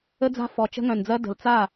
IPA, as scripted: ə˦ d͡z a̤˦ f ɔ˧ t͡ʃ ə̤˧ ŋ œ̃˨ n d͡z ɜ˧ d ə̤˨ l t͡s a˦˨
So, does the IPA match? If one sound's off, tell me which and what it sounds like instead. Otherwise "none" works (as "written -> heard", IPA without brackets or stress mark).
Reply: none